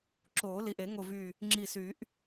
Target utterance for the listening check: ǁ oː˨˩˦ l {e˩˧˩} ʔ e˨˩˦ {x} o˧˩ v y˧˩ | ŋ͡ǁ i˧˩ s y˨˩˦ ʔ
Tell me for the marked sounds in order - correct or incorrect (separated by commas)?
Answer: incorrect, incorrect